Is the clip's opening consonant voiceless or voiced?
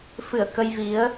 voiceless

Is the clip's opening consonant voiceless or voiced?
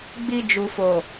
voiced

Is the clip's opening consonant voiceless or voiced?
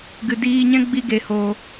voiced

